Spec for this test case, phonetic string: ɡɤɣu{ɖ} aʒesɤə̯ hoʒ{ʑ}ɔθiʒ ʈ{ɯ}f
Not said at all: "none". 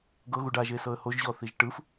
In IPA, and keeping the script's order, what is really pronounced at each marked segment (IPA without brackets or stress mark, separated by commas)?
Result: ɖ, ʑ, ɯ